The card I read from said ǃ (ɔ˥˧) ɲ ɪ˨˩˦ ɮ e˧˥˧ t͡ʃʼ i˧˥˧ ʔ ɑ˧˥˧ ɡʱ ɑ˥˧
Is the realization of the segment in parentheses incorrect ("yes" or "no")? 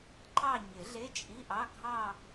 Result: yes